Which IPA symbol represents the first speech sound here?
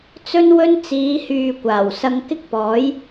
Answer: t͡s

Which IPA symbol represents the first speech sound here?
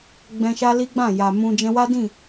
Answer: ɡ͡b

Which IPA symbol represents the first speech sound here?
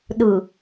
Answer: ɗ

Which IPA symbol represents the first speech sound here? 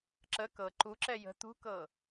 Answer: ǁ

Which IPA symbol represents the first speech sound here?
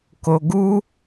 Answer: k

